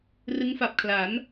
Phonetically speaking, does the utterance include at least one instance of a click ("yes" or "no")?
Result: no